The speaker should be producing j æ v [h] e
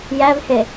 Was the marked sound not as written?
no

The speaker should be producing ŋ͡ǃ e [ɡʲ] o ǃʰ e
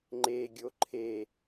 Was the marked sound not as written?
no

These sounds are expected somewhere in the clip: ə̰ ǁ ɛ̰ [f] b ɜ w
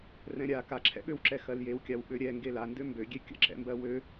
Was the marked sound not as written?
yes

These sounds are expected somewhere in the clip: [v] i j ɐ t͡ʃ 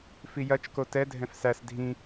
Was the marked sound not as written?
yes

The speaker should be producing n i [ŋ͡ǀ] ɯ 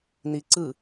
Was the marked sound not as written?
yes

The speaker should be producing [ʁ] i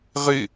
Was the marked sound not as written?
no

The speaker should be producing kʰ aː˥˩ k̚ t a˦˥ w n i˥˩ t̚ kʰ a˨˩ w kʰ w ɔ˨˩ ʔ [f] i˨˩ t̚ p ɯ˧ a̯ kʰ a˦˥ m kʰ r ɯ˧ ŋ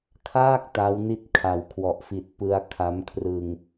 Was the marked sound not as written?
no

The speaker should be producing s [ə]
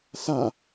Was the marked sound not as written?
yes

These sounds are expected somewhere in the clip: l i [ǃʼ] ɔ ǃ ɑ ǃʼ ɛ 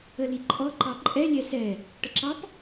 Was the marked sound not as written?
no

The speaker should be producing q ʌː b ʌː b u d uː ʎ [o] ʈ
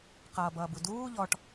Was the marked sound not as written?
yes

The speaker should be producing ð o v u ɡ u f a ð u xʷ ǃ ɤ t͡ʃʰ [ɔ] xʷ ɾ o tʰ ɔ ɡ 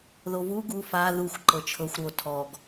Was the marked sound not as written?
yes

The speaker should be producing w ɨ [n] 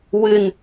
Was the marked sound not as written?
no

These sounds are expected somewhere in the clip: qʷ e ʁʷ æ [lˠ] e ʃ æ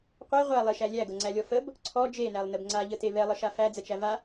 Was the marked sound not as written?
no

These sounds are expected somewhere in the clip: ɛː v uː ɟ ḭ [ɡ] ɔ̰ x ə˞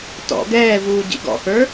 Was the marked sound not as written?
no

